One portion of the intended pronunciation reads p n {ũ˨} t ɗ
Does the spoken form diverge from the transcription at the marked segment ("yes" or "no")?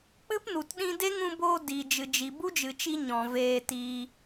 yes